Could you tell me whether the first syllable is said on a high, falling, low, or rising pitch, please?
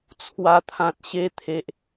low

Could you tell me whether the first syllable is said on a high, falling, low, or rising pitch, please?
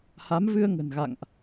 rising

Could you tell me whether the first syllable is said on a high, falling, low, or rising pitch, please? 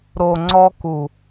low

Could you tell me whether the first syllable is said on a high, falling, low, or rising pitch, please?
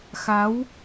rising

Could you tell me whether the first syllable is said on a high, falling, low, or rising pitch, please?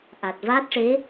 low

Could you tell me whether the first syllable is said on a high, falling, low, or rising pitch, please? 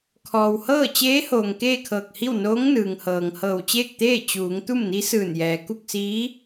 low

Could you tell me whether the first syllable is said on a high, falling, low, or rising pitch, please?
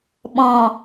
low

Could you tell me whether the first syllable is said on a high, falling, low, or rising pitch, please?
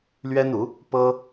high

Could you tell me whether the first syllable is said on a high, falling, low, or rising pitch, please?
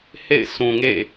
falling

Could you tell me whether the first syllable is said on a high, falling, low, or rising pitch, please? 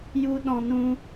high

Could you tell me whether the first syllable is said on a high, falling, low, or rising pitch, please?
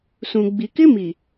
low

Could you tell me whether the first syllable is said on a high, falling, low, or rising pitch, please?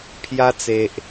high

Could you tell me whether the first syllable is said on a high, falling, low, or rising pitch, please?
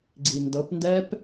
low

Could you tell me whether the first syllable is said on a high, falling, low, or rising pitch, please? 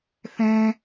high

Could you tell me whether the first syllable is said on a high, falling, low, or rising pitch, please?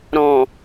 low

